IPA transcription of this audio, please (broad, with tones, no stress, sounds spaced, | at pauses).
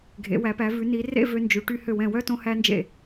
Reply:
ɡʱ ḛ˩˧ w æ˩˧ p æ˩˧ v ʉ˩˧ n i˩˧ r ḛ˥˧ v ø˧ n d͡ʒ ʉ˩˧ ʈ y˧ h ø˧˩ w ɛ̃˧˩ w œ˥˧ t õ˧ h æ˧ n d͡ʒ ḛ˧˩